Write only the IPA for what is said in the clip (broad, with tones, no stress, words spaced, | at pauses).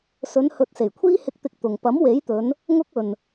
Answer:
sɵ˨˧nhɵ˨t̚ se˨˩jkʷʰiː˥hɪ˧k̚t̪ɪ˧k̚ t̪ʊ˨ŋ pɐ˨˥mwe˨˥jt̪ɵ˨˧n | ŋʊ˥k̚ɵ˨n